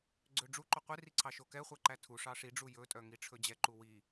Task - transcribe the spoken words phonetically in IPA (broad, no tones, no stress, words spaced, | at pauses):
ɡ͡ǀøɖ͡ʐuǃo qʷeri ǀʰɑʃokɛχʷæ ǃætʰuʂɑ ʂiɖ͡ʐu jɵtʼœ ŋiʈ͡ʂʰɵd͡ʑɛǃu wi